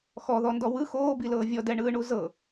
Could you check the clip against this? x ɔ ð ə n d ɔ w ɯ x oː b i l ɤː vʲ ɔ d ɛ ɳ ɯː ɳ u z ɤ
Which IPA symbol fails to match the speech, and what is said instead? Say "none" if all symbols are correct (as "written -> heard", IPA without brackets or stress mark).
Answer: ə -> ɔ